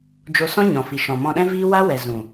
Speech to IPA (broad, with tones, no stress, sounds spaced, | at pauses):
d͡ʒ o˧ s ɔ̃˦ ɲ ɔ̃˨ f i˨ ʃ ɔ̃˨ m ɔ̃˧ ɗ ɛ̃˦ v iː˦ w a˦ w ɛ˨ z ũ˨